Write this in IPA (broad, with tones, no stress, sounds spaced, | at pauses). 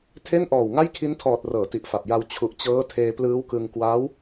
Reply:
tʰ e˥˩ n ʔ ɔː˨˩ w ŋ a˥˩ j kʰ i˦˥ n tʰ ɔː˨˩ t̚ r ɤː˩˦ t i˨˩ ʔ f a˨˩ p̚ j a˧ w t͡ɕʰ u˨˩ ʔ t͡ɕ ɤː˦˥ tʰ eː˧ p l ɯː˦˥ w k ɯ˧ ŋ k w aː˦˥ w